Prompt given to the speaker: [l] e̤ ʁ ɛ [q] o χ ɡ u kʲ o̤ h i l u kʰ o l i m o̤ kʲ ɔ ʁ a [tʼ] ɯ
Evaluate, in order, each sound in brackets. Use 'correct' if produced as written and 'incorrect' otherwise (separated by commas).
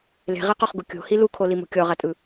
correct, correct, correct